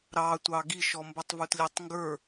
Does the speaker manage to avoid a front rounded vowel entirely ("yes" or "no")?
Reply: yes